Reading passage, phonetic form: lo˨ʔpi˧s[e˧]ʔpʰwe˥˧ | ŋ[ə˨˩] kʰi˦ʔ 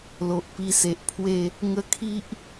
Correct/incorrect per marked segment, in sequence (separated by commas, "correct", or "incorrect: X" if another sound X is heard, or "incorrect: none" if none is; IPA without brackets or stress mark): incorrect: e˨, incorrect: ə˦